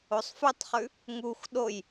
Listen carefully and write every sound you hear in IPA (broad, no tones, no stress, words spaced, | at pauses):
osˤfʉtˤχʉ | ŋux ɗoj